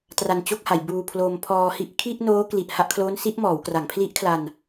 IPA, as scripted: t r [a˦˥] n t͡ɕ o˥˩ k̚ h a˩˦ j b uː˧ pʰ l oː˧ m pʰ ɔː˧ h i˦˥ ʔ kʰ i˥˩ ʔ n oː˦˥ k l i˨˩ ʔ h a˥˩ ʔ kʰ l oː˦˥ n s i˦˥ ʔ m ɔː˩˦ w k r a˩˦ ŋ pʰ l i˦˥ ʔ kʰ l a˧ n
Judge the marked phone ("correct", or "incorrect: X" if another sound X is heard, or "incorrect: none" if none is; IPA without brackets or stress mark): incorrect: a˧